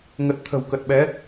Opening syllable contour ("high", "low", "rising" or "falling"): low